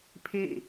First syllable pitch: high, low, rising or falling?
falling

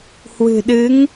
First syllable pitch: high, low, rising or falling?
low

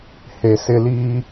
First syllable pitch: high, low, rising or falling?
low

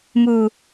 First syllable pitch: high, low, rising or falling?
low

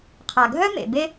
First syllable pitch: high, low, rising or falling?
low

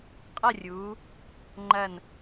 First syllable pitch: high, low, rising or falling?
falling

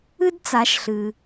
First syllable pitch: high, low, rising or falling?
high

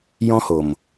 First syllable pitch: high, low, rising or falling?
high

